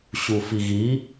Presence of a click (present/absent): absent